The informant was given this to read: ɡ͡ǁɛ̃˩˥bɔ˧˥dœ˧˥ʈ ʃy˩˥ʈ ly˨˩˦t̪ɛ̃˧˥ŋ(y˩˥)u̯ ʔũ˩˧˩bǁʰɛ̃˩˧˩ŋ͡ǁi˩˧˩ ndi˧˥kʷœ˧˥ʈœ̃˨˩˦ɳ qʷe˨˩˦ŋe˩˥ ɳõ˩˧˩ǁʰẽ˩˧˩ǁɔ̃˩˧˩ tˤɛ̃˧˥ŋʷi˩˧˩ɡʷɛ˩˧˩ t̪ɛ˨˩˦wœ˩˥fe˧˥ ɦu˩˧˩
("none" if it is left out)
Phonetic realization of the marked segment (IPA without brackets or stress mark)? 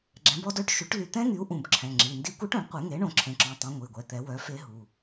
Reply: y˩˥